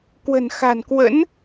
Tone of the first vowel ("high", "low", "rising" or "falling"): low